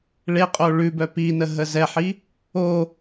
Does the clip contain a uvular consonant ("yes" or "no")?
yes